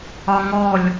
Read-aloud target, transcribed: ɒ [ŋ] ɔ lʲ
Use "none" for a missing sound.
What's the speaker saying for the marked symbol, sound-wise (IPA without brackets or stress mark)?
ŋ